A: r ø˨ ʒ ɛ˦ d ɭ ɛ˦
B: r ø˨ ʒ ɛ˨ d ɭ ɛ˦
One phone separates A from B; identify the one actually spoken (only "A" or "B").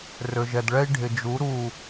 B